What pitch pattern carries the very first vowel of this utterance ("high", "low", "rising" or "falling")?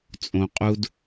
low